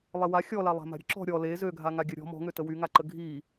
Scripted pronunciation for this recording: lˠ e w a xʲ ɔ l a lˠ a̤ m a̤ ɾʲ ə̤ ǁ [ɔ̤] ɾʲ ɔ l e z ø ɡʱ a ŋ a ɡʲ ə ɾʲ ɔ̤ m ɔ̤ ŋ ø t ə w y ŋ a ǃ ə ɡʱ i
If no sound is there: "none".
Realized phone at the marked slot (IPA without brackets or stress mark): ɔ̤